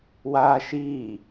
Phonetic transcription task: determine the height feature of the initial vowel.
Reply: low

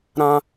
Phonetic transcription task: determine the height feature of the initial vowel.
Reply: low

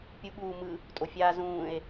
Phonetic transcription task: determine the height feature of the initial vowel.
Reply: high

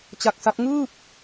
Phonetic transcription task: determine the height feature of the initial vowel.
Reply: low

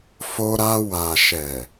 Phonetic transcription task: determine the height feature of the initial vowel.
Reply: mid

